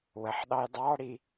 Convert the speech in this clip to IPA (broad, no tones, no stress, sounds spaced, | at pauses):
w ə ħ ɗ ɑ j dˤ ɑ ɽ i